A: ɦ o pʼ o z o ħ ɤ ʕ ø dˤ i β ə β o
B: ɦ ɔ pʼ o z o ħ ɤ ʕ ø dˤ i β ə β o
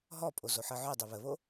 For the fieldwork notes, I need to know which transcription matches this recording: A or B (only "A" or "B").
B